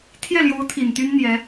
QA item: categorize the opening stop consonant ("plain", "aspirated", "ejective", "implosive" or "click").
aspirated